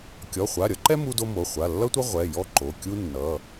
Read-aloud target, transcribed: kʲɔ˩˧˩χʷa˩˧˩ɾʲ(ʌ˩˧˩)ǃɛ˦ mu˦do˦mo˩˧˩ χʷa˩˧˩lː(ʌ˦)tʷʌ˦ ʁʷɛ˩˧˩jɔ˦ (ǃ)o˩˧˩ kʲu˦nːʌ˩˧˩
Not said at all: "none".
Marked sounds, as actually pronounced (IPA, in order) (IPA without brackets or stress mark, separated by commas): ʌ˦, ʌ˦, ǃ